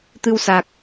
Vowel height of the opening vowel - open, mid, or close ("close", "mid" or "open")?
close